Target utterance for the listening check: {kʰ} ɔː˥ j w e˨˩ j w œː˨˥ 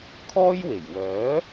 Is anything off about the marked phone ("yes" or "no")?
no